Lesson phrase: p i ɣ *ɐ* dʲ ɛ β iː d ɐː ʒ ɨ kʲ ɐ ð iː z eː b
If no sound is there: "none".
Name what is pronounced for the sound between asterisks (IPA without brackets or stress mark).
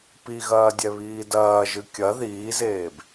ɐː